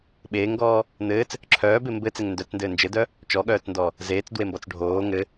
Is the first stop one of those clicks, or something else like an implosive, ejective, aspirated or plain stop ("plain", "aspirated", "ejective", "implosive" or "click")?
implosive